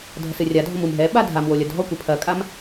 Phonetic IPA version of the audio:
dʱ ɐ s ɨ rʲ a dʱ ɔ m u m ɦ ɛ ɓ a dʱ a m w o lʲ ɐ dʱ ɔ kʷ ɨ pʰ ɐ kʼ a m

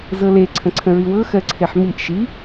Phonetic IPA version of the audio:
z ɤ l e ǀʰ ə̃ ǀʰ ə̃ ɹ i w ɤ x ɜ ǀʰ e ħ m i ʔ ʃ i

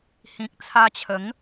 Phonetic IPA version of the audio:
h ĩ˨ k̚ t͡sʰ a˧ t͡ɕʰ ə˨˦ ŋ

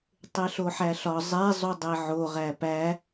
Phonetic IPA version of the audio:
tˤ e ɬ o ħ æ ɬ ɒ zˤ e zˤ u dˤ e ʕ o ʁ æ p æ

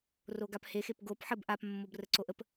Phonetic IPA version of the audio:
r o ɡ a p h e x e p ɡ o p ħ ə b ʔ a p mː o b r ə ǀ o ʔ ə p

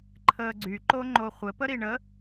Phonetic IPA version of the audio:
ǃʰ əː ɡ͡ǀ y ǃ o ŋ͡ǃ o χʷ ɘ p ə ɾ i ɳ ə

